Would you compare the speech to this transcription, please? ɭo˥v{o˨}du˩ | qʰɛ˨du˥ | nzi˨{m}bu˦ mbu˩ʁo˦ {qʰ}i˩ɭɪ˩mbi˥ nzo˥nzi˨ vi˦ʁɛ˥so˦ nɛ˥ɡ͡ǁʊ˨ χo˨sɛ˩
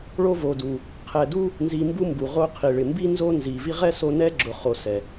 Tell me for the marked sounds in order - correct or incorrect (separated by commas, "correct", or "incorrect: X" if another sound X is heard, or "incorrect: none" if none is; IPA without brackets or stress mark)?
correct, correct, correct